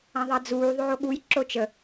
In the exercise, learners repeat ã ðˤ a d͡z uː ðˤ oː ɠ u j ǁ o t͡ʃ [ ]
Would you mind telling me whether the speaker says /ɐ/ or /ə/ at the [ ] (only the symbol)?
ə